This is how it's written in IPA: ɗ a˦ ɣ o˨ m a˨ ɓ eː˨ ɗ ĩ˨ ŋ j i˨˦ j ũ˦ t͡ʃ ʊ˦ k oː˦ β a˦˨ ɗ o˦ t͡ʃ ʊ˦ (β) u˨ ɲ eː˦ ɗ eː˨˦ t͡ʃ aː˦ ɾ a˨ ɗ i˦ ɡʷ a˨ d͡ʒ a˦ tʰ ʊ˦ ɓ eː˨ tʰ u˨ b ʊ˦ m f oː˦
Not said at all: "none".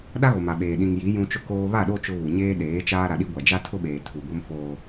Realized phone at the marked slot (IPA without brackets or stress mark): β